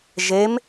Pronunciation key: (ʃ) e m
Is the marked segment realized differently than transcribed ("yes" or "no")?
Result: yes